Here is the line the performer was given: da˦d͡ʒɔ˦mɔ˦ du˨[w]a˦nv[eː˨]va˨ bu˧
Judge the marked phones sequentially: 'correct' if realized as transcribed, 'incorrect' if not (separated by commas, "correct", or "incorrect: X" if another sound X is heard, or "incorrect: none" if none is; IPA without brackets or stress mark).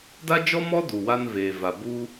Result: correct, correct